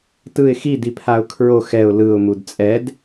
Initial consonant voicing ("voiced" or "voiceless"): voiceless